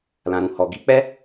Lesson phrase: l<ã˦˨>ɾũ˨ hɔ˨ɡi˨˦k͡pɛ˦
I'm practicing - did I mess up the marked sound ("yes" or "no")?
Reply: yes